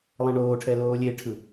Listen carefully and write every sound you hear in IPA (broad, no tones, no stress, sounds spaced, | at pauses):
lˠ ɛ̃ ɳ oː ʈʰ ɛ l oː lʲ e ʈʰ ɯ